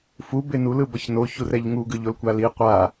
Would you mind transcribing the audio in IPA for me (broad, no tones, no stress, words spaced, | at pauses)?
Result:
fube nulɯbʌç noçur ɛʎŋuɡɯ ʎolkʷali qʷa